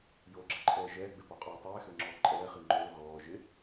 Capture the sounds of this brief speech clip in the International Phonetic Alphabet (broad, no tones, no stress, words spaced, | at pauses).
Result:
joɡ͡ǁəǃʼɛː ʒɛːɡ͡bɪpɔqʼoː tˤɛːxøŋ͡ǁɔː ǃʼɛːχi ŋ͡ǃoː ɣɔː ʒɪ